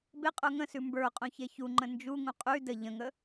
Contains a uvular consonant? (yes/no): yes